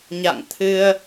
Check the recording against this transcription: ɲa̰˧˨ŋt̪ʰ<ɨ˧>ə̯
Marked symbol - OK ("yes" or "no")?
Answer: yes